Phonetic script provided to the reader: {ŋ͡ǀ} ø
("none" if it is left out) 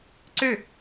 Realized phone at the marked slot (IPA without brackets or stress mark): ǀ